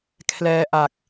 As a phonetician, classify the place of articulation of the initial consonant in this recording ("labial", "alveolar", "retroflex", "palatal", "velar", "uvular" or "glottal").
velar